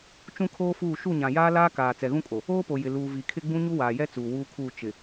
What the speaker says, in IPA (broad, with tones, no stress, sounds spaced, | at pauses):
t͡ʃ ũ˦ kʰ oː˦ f uː˦˨ ʃ u˦˨ ɲ ã˨ j aː˦ l aː˦ k aː˨ t͡s ɛ˨ ɣ ũ˦ kʼ o˨ | oː˦ p o˨ j ɪ˨ l uː˨ v i˨ kʰ ɪ˦ ɡ͡b ũ˦ ɲ u˦ w aː˨ j ɛ˦ t͡s uː˨ w uː˦ kʰ uː˦˨ t͡ʃ ɪ˨